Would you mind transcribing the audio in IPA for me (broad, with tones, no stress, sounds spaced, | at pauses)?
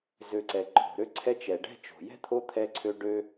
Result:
z ø˨ ǀ ɛ˩ ǃʰ o̤˩ ɾ ø˦ ǀʰ ɛ˦ t͡ʃ ɛ˩ ɖ ɛ̤˥ t͡ʃ o̤˩ j ɛ̤˥ t̪ʰ o˦ t̪ʰ ɛ˦ ǀʰ ø˦ ɖ ø˥